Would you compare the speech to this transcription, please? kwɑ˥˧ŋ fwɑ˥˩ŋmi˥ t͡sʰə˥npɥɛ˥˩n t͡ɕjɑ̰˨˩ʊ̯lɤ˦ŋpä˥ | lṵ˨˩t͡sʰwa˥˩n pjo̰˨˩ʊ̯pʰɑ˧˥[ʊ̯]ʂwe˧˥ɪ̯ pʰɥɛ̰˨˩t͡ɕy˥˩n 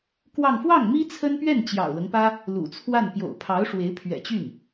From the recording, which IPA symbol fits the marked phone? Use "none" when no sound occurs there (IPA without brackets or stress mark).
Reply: ʊ̯